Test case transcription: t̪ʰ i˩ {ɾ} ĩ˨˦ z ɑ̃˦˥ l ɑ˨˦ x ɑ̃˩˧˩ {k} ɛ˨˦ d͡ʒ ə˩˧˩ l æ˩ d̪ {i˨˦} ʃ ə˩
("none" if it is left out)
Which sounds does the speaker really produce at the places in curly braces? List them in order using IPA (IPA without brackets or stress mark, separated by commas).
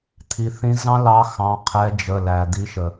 θ, qʰ, i˨˦